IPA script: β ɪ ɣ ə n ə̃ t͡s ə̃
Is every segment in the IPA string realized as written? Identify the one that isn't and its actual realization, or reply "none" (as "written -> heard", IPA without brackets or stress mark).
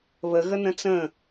ɪ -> ə